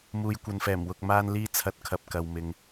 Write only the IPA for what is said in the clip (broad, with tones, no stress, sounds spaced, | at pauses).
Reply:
m uː˨ j kʷ ɐ˨ n f ɛː˨˩ m w ʊ˨ k̚ m aː˧ n l iː˧ t͡sʰ ɐ˨˥ t̚ kʰ ɐ˨ p̚ k ɐ˨ w m ɪ˨ ŋ